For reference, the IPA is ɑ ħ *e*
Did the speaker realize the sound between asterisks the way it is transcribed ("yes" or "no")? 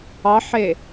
yes